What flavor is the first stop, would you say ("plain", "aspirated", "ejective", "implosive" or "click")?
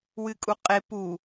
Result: ejective